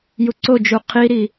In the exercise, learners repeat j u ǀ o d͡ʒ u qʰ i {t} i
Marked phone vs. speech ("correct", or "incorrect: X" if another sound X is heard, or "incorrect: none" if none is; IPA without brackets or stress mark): incorrect: ɾ